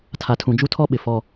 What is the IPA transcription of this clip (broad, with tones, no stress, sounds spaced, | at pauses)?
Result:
tʰ a˨ tʰ ũ˨ d͡ʒ u˦ tʰ ɔ˦ ɓ ɪ˨ f ɔ˦